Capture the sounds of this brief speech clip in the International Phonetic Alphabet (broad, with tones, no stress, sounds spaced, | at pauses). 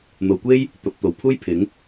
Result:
n̪ o˨˧ w kʷ e˥ j | t̪ ɐ˨ p̚ t̪ o˨ w pʰ uː˥ j pʰ ɪ˨˥ ŋ